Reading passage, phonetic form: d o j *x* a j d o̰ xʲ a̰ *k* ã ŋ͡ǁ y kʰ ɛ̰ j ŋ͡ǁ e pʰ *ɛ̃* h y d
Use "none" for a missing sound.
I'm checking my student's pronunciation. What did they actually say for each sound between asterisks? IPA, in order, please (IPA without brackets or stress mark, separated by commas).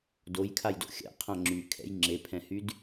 kʰ, qʰ, ɛ̃